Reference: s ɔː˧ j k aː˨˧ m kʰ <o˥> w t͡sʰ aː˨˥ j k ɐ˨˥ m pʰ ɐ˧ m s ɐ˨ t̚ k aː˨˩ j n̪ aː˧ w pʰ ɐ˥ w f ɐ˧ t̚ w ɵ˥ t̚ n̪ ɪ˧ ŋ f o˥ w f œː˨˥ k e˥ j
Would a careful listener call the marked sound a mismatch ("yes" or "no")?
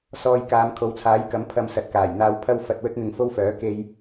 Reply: yes